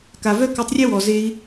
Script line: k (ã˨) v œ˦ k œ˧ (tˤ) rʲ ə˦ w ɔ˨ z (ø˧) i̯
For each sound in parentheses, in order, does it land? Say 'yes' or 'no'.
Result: no, yes, no

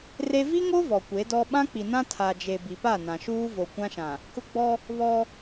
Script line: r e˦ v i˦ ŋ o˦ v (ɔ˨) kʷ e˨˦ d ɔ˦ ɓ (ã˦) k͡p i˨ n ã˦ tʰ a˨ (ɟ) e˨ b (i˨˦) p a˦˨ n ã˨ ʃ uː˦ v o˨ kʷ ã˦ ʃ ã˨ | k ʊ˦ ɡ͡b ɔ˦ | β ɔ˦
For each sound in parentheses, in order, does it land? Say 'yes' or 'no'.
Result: yes, yes, no, no

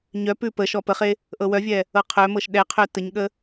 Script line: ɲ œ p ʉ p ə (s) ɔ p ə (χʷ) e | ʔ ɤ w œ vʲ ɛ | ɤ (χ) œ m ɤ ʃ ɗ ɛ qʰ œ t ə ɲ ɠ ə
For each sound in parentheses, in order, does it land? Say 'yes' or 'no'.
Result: no, no, no

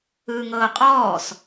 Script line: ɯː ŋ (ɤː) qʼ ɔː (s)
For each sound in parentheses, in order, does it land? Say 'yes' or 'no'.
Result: yes, yes

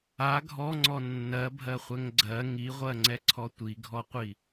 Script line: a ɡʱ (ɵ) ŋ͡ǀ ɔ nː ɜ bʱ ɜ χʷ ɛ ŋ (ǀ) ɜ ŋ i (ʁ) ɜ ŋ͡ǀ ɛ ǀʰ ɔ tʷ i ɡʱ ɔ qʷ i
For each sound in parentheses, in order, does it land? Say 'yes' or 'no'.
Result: no, no, no

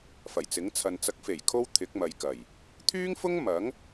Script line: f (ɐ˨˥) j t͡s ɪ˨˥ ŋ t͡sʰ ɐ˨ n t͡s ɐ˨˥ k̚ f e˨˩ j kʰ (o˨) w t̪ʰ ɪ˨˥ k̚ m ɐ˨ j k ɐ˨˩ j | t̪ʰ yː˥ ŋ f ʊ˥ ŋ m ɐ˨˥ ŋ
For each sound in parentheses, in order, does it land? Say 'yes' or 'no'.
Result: no, no

